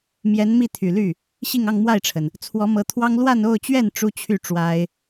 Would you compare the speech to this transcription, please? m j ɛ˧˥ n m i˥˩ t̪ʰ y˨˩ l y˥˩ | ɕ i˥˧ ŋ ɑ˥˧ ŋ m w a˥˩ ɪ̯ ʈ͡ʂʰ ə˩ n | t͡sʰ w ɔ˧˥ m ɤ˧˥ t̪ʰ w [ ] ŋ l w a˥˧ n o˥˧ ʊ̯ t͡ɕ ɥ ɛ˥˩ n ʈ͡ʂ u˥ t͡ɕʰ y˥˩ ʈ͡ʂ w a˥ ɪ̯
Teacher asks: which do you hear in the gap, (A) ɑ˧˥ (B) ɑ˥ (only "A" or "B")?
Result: B